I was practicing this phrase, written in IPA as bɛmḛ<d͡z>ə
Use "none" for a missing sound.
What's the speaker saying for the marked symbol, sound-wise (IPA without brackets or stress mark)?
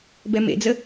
d͡z